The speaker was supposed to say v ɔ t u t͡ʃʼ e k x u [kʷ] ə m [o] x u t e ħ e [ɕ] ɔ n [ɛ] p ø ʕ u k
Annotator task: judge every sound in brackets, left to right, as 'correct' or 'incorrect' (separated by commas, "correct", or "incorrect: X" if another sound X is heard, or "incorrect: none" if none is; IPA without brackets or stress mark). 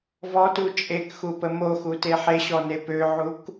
incorrect: p, correct, correct, incorrect: e